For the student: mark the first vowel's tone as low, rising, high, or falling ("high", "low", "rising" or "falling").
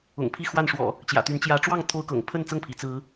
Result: low